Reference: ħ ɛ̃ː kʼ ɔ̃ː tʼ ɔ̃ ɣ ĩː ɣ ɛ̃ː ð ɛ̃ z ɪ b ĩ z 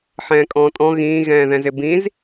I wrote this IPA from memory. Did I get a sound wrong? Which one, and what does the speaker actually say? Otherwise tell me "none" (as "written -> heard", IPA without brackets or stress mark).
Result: none